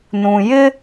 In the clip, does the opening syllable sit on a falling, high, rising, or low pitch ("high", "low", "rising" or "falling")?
low